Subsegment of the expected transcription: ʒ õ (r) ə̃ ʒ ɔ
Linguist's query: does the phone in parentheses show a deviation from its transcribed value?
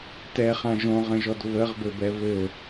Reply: yes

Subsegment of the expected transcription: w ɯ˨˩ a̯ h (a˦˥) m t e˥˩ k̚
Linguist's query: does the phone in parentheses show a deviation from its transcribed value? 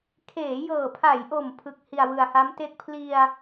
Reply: no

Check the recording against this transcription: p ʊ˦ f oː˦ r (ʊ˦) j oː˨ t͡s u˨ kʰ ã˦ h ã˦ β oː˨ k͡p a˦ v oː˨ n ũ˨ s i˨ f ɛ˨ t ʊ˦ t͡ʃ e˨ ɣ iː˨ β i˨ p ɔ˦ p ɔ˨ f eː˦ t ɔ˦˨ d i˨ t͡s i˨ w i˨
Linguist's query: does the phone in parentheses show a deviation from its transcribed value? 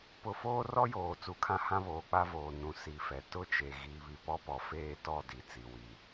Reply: yes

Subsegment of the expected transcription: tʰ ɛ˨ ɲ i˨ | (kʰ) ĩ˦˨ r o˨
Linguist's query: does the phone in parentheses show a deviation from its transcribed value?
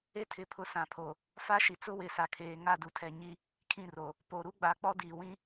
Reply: no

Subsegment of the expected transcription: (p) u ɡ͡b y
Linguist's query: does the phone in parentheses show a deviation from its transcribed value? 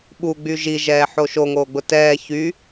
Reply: yes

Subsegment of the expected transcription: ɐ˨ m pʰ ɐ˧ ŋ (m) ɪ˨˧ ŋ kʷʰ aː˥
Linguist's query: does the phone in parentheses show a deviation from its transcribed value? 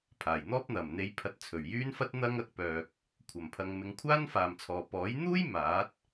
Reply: no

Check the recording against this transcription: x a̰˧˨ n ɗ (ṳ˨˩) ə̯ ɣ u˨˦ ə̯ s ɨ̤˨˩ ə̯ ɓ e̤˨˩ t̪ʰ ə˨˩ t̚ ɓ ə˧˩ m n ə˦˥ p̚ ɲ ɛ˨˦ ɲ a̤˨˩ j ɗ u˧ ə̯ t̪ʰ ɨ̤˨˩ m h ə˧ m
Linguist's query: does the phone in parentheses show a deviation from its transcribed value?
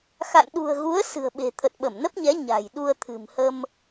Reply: no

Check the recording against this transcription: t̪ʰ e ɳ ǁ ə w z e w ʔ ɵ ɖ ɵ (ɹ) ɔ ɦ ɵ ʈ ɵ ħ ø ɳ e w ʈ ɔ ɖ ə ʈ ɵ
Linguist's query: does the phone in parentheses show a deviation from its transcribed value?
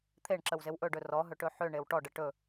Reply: yes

